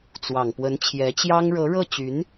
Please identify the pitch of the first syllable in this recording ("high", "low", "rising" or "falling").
low